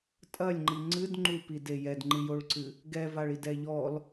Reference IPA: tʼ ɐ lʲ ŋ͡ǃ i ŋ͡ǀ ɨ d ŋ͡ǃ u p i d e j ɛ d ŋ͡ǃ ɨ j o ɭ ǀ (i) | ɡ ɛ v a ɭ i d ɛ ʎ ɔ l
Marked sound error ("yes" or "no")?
yes